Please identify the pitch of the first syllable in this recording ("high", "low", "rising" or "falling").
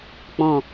low